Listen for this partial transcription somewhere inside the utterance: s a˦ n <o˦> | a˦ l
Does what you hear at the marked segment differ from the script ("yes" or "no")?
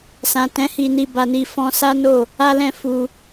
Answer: yes